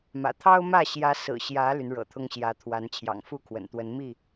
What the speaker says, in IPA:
mä̰˨˩t̪ʰɑ˦ʊ̯mä˥˨ ɕjä˨˦sɹ̩˨˩ ɕjä˨˦ ly˨˦nɻɤ̰˨˩t̪ʰʊ˦ŋ ɕjä˨˦t̪ʰwa˨˦n t͡ɕʰjɑ̰˨˩ŋfu˥˨kʰwə̰˨˩nt̪wə˨˦n mi˥˨

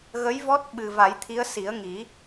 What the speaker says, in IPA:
ɣə˧˥jvɔ˦˥t̚ ɓɨ˨˩ va˨˩˦jt̪ʰi˧˥ə̯ si˨˩˦ə̯ŋi˨˩˦

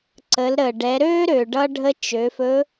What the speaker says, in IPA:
ǀə˩˧lɾəː˩ ɖɛ˩˧ɾøː˥ ɾø˩ ɖʌ˧ɖʱə˧ t͡ʃø˩˧fɵ˧˥

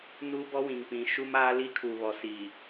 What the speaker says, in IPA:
nu˦bɔ˦wĩ˨ŋpĩ˨ ʃu˦maː˦ li˦kʰu˨βɔ˨si˨

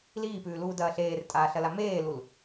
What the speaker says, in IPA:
liːpʉːluːdɐː ɬeːrtʼaːɬɐla meːlul

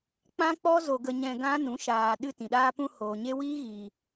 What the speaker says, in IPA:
k͡pã˦k͡pɔ˦ zo˧ɡə˧ ɲɛ̃˧ɡã˦nũ˨˦ ʃaː˨ ɗɨ˦tĩ˨ ɗaː˧pũ˧ hoː˨ɲe˦ wiː˦ɣiː˨

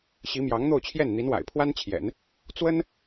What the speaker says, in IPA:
ɕi˧˥mjɑ˧˥ŋn̪o˥˧ʊ̯t͡ɕʰjɛ˥˩n n̪i˧˥nwa̰˨˩ɪ̯pʰwa˥nt͡ɕʰjɛ̰˨˩˦n | t͡swə˥n

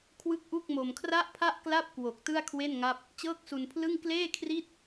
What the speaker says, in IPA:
kʰwɯ˥˩k̚ʔu˥˩k̚mo˧m kʰra˥˩ʔpʰa˥˩ʔkla˥˩p̚ kwo˨˩k̚ tɯ˥˩a̯kʰwe˥˩nŋa˥˩p̚ | t͡ɕɤː˥˩k̚su˧npʰlɯ˥˩ŋ kleː˥˩kʰri˥˩t̚

